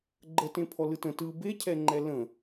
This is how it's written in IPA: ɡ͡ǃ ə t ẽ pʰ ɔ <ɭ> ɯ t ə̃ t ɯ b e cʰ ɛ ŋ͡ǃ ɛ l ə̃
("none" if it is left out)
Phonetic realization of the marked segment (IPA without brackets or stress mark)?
l